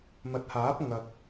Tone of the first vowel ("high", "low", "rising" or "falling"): rising